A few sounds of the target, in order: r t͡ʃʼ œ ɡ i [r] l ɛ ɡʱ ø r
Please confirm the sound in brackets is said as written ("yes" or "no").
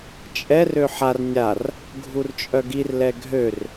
yes